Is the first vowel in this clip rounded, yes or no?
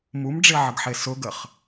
yes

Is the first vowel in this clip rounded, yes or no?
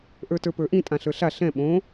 no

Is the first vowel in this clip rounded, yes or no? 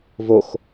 yes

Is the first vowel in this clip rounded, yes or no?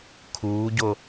yes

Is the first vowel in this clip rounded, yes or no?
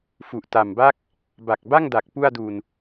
yes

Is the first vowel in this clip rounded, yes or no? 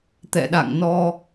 no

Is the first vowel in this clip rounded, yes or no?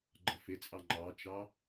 no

